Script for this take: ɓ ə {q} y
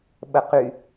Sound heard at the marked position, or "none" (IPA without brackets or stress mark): q